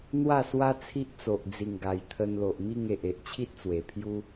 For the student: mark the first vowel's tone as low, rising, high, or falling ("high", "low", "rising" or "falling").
falling